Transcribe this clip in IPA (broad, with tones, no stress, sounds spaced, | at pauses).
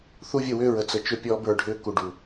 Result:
θ u˦ vʲ ə˦˨ w ʏː˦ ɹ ə˨ t͡s ə˨ t͡ʃ ʏ˦˨ pʲ ɔː˦ b ə˞˦˨ ɖʱ ʏː˦ k u˨ ɖ u˨